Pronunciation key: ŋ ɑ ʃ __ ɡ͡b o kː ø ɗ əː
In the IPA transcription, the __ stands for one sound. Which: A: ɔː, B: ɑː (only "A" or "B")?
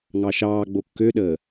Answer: B